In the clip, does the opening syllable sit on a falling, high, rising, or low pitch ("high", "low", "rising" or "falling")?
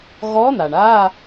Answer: rising